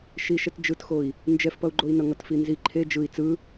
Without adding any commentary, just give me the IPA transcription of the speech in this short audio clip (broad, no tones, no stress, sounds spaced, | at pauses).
ʃ i ʃ ɛ t d͡ʒ ɯ t x o i̯ | n d͡ʒ ɛ f p ʌ u̯ ɡ͡ǃ o i̯ n ʌ ŋ ʌ t f i n z i ǃʰ e d͡ʒ ɯ i̯ t͡s ɯ